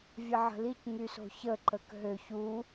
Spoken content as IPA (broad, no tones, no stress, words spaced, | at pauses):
vʲəʕə̤lic ŋyso̤çə ǃəkɦø çu